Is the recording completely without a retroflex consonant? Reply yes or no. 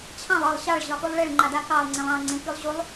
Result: no